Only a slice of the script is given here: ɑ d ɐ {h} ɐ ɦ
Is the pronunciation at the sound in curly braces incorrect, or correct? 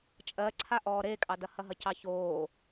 correct